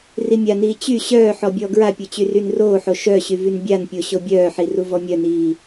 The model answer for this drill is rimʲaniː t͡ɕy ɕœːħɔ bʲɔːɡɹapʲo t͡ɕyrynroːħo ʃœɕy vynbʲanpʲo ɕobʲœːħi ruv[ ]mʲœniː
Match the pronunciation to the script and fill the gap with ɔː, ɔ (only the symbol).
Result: ɔ